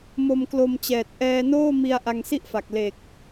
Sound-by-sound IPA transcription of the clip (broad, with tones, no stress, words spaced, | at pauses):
mo˧mklo˧mt͡ɕɛː˨˩t̚ ʔɛː˧noː˥˩ mi˧a̯ ʔa˧ŋsi˥˩ʔfa˨˩k̚ le˨˩k̚